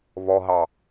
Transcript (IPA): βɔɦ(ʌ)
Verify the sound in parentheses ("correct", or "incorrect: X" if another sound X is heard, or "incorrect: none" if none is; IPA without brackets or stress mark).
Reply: incorrect: ɑ